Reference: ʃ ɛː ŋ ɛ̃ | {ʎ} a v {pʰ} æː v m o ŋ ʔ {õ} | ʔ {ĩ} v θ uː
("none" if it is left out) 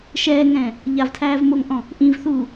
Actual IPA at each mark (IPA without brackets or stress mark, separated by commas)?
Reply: ʎ, tʰ, ɔ̃, ĩ